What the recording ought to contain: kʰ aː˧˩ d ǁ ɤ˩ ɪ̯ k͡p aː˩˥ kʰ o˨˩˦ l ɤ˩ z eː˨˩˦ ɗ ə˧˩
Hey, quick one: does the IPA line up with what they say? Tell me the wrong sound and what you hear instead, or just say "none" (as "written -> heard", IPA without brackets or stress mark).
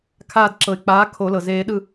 ə˧˩ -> ɯ˧˩